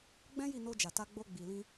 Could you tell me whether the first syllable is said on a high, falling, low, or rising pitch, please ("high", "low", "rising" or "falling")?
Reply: high